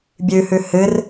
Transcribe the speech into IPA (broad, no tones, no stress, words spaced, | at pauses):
bʲʉhʉ hɨr